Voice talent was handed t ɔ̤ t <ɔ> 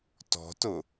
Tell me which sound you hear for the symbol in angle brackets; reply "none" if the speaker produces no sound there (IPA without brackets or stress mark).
ʊ